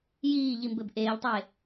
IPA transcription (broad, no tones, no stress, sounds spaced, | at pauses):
j iː ʎ i m b ɘ b ʔ eː ʎ tˤ eː